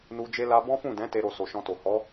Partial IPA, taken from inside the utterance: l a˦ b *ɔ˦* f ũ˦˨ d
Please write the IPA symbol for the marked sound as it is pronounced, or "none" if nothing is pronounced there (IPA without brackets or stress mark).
ɔ̃˦